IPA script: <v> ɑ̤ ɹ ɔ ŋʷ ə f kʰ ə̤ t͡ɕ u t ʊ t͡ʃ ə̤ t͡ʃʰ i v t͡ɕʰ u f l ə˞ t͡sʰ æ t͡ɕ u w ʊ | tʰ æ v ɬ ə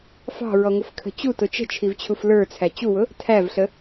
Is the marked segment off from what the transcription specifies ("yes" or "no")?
yes